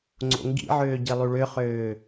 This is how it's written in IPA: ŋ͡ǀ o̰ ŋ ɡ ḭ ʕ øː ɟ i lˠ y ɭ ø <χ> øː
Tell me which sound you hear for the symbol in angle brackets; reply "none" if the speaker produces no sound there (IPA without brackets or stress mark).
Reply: χ